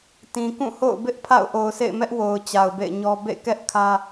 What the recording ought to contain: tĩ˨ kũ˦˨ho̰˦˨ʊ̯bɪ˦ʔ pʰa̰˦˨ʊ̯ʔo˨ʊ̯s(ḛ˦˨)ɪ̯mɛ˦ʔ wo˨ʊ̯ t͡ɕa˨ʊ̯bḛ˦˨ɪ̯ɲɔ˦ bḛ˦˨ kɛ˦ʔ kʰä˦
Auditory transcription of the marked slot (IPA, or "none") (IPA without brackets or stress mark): ḛ˦˨